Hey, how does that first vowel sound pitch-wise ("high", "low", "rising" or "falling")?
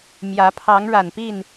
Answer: rising